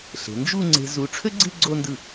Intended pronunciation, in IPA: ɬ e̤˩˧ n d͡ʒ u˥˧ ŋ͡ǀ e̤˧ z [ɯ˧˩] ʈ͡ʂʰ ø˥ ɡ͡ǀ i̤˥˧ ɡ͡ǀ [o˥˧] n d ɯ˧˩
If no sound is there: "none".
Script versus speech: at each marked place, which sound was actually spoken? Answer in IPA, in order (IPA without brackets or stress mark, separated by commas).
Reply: u˧˩, o˥˧